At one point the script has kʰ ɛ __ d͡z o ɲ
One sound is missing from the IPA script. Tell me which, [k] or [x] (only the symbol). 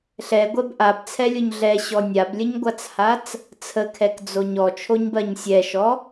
k